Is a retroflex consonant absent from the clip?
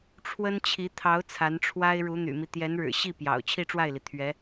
no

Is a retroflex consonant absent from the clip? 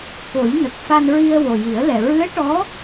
no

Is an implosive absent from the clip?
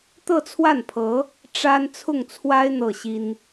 yes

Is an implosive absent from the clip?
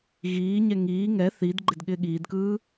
no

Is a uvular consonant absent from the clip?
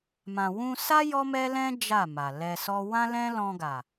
yes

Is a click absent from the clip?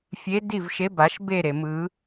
yes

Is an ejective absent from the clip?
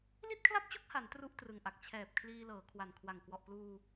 yes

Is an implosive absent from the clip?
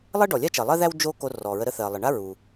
yes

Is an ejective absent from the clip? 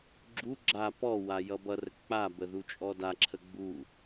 no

